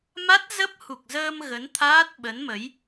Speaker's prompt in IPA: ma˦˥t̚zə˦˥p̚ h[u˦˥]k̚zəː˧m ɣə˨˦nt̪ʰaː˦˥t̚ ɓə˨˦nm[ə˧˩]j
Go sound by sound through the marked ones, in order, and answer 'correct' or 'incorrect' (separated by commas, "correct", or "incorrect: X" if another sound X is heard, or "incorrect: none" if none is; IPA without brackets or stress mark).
incorrect: u˨˩, incorrect: ə˨˦